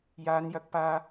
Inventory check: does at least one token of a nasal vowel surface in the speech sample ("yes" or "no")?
no